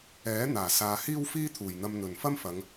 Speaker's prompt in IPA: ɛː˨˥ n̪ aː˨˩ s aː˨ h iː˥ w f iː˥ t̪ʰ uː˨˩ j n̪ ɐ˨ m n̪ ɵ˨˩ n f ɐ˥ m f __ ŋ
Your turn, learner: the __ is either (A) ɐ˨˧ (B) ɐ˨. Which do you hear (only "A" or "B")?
A